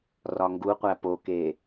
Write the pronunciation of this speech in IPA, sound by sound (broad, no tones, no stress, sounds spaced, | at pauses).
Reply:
r ɒ ŋ ɡ u qʷ æ p o k e